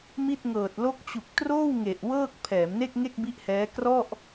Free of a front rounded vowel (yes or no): yes